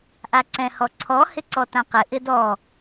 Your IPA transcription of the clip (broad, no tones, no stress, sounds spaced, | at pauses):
ʔ a ǀ ɛ̃ h ɔ ǀʰ ɔ h ɪ ǀ ɔ t ã q ɪ ʔ ɪ d ɔ